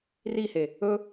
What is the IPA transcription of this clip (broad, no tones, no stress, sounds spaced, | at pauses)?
r i h e | ɵ